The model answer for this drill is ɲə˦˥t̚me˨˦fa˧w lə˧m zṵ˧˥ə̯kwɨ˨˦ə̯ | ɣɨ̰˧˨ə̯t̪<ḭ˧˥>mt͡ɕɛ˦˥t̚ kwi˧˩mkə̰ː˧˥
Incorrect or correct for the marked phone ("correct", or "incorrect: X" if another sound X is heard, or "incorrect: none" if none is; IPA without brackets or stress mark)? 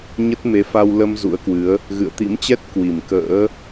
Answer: correct